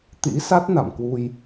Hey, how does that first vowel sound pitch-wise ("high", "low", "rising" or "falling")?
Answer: rising